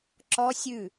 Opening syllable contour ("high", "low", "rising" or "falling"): high